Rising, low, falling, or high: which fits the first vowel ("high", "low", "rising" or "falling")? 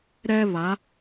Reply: high